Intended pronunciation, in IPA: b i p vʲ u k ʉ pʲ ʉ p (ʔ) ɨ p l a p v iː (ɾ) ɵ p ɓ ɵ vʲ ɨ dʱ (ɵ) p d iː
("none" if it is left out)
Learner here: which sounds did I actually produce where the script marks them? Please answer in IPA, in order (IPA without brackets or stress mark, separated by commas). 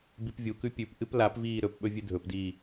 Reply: ʔ, ɾ, ɵ